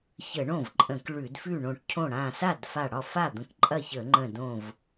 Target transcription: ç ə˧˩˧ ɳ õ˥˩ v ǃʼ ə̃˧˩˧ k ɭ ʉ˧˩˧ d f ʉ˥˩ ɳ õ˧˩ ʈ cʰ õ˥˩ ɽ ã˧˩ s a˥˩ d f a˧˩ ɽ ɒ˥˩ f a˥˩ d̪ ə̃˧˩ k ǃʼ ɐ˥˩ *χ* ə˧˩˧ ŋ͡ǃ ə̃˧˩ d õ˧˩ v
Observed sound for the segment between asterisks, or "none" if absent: ç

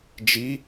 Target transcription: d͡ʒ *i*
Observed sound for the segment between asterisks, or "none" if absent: i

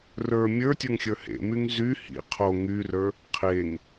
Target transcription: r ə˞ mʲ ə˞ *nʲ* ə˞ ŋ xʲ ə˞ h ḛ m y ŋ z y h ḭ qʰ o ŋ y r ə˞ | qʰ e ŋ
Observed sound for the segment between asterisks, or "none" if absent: tʲ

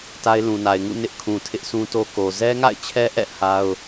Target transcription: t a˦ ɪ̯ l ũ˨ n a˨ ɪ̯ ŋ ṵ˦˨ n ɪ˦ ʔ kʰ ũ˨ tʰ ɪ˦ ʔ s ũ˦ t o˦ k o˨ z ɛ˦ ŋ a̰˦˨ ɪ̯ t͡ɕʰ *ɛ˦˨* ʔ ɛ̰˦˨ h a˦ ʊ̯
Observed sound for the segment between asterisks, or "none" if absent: ɛ˦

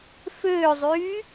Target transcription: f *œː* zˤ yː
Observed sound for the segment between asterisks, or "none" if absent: øː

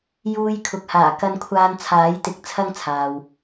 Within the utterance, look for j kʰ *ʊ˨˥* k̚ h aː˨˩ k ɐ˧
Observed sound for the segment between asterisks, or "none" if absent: ʊ˨˥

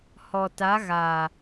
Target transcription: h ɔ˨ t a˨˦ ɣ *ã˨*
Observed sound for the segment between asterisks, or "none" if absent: a˨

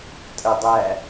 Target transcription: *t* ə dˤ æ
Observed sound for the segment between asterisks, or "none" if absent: tʼ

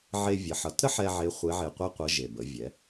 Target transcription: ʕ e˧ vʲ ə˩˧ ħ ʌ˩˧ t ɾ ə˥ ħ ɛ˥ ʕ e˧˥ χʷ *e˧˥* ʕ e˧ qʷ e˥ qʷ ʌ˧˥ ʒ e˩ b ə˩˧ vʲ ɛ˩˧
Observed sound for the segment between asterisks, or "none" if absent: e˧˥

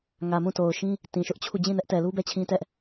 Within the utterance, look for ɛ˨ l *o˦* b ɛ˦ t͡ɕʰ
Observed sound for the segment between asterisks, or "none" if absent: u˦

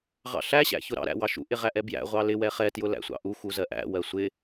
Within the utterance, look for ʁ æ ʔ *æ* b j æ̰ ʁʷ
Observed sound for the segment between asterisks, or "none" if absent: ɛ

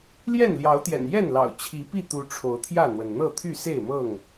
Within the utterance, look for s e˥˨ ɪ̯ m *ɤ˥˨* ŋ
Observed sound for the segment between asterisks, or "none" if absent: ɤ˥˨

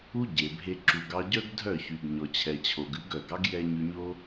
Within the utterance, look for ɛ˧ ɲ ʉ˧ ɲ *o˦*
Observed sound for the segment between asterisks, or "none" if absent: o˦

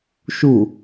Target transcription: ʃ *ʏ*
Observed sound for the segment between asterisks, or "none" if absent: u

